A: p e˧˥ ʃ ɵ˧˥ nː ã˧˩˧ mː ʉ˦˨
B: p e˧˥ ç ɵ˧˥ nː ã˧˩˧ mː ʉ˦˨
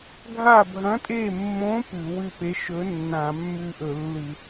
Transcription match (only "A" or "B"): A